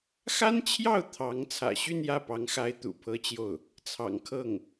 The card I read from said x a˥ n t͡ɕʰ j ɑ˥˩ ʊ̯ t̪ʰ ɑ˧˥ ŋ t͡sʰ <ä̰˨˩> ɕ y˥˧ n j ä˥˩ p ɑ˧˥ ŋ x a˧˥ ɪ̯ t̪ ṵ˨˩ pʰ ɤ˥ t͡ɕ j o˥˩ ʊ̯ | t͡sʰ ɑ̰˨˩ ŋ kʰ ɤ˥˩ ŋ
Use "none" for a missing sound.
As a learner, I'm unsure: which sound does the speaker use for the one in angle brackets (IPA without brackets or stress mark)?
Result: ä̰˨˩